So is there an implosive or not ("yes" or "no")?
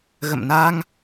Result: no